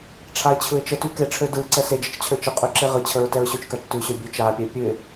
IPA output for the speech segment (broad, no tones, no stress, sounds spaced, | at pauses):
ʈ͡ʂʰ a ɪ̯ t͡ɕʰ ɯ ɪ̯ t͡ʃ ə t ʉ k e ʈ͡ʂʰ ø d ɯ ǀ ɛ s e d͡ʒ ə t͡ʃ t͡ɕʰ ø t͡ʃ ə qʼ ʉ ǁ e ʁ ɯ t͡ɕʰ ə ɹ t ɛ ɹ ɕ ʉ t͡ʃ k a t͡ʃ t ʉ ɕ ø bʲ ʉ t͡ʃ a pʲ ɛ pʲ ʉ ɪ̯